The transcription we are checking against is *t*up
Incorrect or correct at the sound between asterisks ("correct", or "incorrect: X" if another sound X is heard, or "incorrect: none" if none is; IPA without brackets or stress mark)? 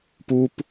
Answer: incorrect: p